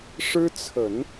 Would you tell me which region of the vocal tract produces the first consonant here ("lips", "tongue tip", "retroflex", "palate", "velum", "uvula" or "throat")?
retroflex